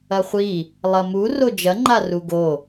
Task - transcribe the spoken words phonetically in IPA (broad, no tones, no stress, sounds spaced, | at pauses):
ɐ χʷ i | lˠ ɐ m u r o d͡ʒ ɐ ŋ͡ǃ a r u ɡ o